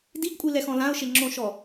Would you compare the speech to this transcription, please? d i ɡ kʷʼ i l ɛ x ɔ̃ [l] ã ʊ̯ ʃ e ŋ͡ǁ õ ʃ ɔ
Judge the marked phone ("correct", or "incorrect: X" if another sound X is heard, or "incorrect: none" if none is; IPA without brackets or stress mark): correct